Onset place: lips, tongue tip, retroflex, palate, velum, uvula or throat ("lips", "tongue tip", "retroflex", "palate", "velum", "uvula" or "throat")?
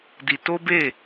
tongue tip